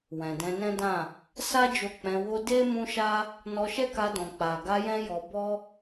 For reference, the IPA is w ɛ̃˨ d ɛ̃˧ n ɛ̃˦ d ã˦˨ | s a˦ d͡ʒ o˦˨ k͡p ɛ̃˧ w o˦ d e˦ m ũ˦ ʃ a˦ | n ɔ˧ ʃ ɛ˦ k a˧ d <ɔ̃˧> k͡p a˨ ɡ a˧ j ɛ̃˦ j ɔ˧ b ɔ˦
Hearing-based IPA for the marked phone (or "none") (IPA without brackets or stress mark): ɔ̃˨